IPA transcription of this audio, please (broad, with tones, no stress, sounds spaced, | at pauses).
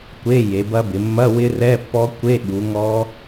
kʷ e˧˥˧ j e˩˧ b ɐ˦˥ b ɪ˩˧ mː ɐ˧˥˧ w ɪ˦˥ r ɛ˧˥˧ pː ɔ˦˥ kʷ e˧˥˧ ɠ u˩˧ ŋ ɔ˦˥